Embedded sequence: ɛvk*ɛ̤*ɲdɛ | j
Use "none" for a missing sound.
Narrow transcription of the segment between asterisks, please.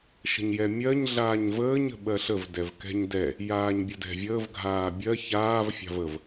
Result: ɛ̤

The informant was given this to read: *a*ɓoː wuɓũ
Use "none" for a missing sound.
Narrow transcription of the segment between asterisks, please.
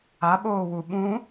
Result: a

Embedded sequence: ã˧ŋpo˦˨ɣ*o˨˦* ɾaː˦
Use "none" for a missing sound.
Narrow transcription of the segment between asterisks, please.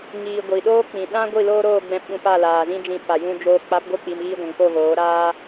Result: oː˨˦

